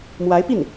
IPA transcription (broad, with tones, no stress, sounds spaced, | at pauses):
m w a˧˥ ɪ̯ p i˥˩ n